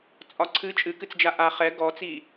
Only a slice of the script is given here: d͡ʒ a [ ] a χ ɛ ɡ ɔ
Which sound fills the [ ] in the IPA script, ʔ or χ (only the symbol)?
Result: ʔ